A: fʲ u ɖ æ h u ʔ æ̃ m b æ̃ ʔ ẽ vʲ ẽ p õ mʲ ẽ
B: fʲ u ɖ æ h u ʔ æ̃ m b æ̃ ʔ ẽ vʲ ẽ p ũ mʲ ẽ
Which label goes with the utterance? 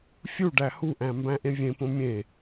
A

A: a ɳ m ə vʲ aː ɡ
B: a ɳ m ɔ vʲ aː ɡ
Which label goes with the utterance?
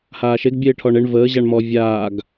B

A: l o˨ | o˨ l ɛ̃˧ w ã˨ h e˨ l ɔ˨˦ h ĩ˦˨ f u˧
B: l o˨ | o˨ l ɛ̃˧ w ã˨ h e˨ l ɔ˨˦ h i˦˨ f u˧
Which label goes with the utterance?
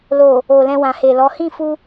A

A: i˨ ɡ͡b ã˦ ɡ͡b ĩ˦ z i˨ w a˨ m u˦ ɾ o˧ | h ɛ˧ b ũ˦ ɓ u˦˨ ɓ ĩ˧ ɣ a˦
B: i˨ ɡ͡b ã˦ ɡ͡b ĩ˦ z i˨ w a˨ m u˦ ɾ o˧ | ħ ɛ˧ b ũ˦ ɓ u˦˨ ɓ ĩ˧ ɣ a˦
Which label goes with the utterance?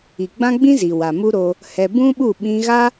A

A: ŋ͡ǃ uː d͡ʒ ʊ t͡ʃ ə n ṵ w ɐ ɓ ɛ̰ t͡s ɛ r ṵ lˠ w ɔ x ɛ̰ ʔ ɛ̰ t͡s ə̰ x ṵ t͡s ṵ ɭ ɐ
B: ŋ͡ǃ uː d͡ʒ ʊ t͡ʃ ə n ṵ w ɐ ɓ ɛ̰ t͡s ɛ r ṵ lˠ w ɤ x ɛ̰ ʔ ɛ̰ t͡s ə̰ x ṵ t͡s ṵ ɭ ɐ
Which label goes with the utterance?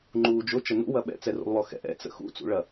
A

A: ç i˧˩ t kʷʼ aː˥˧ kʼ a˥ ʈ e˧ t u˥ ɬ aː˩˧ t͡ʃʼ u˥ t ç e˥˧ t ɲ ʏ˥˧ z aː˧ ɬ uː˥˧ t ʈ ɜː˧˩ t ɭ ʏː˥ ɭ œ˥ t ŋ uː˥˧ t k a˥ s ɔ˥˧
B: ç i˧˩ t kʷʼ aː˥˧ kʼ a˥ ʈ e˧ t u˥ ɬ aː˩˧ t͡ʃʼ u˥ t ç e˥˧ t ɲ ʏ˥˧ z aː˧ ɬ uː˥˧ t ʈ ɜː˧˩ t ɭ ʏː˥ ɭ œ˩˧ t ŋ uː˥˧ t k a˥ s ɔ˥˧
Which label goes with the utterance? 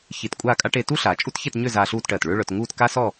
B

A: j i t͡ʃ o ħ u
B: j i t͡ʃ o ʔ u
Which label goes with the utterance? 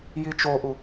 B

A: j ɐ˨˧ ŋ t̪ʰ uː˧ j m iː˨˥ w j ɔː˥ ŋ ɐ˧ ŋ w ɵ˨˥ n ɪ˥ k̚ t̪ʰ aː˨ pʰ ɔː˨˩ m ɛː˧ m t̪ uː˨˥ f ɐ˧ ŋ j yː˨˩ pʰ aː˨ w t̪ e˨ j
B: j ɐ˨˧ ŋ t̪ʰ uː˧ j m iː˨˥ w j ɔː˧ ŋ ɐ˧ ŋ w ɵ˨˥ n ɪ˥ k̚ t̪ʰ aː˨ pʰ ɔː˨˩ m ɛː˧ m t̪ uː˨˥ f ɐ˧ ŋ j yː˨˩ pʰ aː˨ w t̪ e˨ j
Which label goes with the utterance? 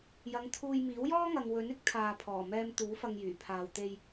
A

